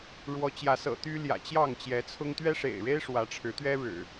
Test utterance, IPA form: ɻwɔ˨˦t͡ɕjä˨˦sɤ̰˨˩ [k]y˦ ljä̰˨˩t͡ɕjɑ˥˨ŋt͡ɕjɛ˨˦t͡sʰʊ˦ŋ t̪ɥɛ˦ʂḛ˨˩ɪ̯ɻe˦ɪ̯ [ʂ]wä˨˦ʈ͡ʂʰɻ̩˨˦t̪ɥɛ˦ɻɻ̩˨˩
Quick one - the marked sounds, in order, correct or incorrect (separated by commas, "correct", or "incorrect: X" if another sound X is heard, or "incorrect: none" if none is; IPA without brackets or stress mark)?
incorrect: t̪, correct